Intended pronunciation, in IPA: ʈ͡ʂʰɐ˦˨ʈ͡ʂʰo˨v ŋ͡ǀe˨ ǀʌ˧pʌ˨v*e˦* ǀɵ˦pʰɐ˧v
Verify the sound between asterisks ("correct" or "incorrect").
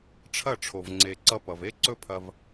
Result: correct